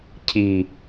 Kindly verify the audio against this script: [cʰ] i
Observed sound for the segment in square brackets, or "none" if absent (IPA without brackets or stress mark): cʰ